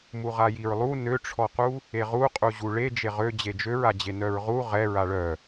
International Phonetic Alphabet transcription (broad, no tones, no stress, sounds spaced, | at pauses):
m u ʁ a j i ɹ lˠ u n ø ʈ͡ʂʰ ɔ q u | e ʁ u qʼ u ʑ u ɭ e d͡ʒ e ʁ ø d͡ʑ e d͡ʒ ø ɹ a d͡ʑ e n œ ɹ ʁ u ʁ ɛ ɹ a ɭ œ